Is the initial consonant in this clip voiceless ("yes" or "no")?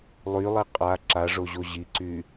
no